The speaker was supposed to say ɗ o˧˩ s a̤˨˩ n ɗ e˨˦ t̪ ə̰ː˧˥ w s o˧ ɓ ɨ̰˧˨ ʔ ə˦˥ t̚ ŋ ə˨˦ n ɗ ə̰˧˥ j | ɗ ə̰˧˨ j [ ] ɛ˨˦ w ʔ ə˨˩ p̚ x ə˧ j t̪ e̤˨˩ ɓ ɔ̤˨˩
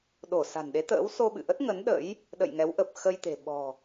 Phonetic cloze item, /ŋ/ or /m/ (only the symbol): ŋ